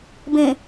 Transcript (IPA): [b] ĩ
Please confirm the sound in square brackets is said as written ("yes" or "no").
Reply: yes